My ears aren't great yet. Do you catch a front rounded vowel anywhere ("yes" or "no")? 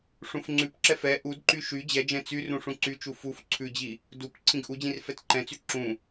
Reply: yes